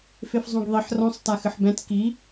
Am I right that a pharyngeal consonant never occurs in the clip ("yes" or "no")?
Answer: no